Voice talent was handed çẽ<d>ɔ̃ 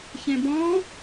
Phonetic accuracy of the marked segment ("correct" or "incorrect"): incorrect